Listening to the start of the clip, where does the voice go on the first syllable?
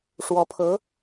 rising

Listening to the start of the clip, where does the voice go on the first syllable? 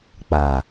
low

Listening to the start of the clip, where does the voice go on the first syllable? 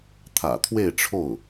low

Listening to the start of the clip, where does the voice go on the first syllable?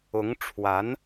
rising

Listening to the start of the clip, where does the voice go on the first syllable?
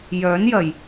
rising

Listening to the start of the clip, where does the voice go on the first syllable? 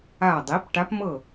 low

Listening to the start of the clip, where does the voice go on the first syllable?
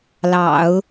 low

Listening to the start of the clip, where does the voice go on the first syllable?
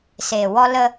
low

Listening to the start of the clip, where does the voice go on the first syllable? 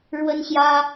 high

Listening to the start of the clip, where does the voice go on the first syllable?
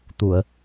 low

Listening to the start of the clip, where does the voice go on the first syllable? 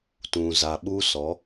low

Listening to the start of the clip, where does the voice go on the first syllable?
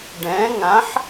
rising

